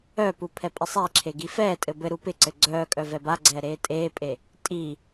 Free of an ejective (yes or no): no